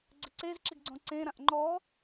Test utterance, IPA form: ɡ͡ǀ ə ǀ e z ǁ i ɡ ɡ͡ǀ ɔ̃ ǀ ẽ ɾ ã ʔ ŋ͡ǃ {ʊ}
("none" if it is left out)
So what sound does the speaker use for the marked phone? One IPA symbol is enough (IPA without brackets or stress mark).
ɔ